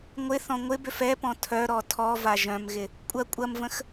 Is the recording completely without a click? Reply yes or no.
yes